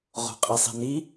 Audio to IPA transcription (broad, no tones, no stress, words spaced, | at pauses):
ʁo̤qʼisˤi̤ni